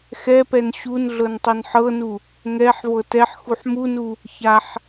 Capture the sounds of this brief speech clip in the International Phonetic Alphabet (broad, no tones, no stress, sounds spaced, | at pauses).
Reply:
x ɛ p ɛ n ɕ u n ɮ ɤ n tˤ ɤ n ħ ɤ n u | ŋ ɛ ħ v ɤ t ɛ ħ x u ħ m u n u | ç a ħ